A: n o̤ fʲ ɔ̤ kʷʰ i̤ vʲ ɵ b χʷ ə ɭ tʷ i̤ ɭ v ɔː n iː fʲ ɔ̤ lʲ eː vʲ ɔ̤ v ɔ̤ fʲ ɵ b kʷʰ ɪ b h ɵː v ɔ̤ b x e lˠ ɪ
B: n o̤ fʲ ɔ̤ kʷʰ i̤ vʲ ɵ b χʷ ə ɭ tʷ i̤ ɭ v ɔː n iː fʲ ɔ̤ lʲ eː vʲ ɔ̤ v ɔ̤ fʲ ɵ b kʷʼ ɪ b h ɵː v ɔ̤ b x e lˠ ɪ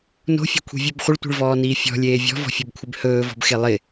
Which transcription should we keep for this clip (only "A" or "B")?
A